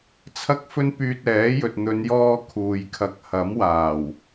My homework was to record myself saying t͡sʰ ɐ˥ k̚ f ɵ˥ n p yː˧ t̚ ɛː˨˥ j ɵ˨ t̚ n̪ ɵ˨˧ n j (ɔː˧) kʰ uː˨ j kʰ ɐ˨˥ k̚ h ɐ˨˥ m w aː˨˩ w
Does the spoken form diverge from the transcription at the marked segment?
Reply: no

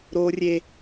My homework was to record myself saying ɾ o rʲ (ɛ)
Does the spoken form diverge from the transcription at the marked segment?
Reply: yes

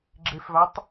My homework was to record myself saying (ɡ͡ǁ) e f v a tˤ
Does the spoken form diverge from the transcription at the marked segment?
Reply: no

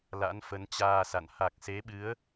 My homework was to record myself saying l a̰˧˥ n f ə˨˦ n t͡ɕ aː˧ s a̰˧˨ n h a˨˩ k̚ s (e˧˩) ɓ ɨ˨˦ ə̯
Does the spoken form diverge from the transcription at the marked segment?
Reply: yes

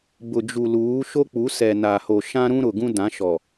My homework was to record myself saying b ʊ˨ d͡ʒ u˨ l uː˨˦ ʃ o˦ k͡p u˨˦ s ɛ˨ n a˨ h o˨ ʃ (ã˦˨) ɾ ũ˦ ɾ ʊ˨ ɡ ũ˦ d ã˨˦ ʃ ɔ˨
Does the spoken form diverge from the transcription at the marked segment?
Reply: yes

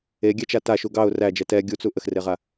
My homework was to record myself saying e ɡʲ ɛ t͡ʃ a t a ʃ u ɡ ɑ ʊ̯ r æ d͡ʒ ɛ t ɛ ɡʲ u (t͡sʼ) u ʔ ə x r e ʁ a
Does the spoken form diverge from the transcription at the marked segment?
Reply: yes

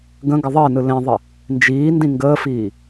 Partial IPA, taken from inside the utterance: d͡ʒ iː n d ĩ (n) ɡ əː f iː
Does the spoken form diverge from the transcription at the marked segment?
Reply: yes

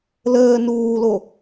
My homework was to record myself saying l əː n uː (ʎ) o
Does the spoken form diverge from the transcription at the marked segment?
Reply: yes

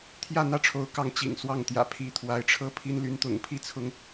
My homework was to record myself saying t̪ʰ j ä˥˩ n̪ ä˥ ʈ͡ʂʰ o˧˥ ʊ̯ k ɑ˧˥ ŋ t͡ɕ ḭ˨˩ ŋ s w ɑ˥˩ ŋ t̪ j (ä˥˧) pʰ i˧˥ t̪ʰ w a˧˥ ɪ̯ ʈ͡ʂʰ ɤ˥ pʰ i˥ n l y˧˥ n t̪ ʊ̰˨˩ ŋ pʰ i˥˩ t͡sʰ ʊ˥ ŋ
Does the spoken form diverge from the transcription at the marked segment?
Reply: yes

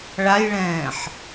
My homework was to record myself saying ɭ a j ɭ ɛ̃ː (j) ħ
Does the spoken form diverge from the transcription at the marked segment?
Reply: yes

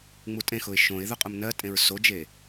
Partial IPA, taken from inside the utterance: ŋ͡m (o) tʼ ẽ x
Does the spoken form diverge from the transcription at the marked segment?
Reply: yes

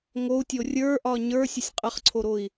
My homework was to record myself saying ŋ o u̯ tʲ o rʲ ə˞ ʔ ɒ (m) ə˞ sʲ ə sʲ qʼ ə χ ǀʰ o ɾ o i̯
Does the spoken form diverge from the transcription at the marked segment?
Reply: yes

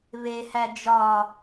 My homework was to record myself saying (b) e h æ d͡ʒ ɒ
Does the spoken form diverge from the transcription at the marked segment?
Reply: yes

